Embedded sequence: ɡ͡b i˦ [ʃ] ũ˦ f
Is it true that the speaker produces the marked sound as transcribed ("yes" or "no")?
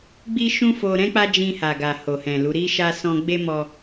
yes